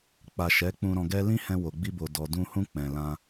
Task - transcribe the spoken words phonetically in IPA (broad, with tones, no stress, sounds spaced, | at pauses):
k͡p a˨ ʃ ɛ˨˦ k͡p ũ˧ ɾ ɔ̃˧ ɡ ɛ˦ l ĩ˦ h ɛ̃˧ w o˨ ɡ͡b i˧ b o˨ d ɔ˨ d ũ˧ h ũ˧ k͡p ɛ̃˨ l ã˧